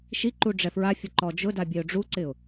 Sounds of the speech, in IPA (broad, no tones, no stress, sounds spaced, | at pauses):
ʃ i ǃ u ɖ͡ʐ ɛ f ɹ a fʲ ʊ ǃ ɔ d͡ʒ ʊ d a bʲ e ʊ̯ ɖ͡ʐ u ǀ ɪ ʊ̯